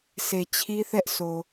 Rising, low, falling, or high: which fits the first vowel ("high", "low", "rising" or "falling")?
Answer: low